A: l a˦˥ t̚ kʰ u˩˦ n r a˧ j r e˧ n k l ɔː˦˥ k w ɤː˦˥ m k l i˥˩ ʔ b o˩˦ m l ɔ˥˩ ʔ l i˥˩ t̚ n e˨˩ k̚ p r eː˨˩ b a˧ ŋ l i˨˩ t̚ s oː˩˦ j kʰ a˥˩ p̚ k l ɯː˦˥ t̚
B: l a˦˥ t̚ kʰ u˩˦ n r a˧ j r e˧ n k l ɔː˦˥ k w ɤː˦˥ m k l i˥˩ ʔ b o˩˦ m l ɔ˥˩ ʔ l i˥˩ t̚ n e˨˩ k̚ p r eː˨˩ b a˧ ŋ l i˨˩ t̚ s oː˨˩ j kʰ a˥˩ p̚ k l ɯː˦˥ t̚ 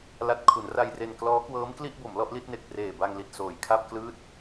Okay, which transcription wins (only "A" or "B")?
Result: B